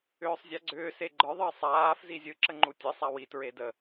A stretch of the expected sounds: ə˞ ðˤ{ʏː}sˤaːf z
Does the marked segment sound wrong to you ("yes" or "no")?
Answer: yes